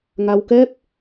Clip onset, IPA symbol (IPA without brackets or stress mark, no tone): ŋ